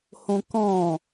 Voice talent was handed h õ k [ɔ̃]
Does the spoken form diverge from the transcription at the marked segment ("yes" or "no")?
no